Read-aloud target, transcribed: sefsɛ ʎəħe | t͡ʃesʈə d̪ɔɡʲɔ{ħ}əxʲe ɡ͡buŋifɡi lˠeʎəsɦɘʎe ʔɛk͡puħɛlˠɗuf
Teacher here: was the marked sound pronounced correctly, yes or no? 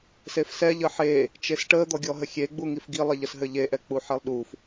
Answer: no